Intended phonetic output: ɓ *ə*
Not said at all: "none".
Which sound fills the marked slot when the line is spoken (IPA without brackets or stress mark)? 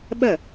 ə